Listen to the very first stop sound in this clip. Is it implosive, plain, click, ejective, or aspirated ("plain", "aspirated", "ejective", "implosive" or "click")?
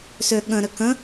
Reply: implosive